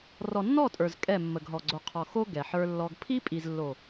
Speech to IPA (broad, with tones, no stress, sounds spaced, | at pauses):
r ɔ˨ nː ɔ˦˨ tʼ ə˞˨ z kʼ ɛ˦˨ mː ə˨ ɡ ɦ ɔ˨ ɡ͡ǀ o˨ qʰ ɔ˨ x o˦ ɡ ɛ˨ ħ ə˞˦ lː ɔ˦ ɡ pʰ i˦ pʼ i˨ z lː o˨